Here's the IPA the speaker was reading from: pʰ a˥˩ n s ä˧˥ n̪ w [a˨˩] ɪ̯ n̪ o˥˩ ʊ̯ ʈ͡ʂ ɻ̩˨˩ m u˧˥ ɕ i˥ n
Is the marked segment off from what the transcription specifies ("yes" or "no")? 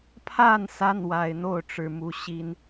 no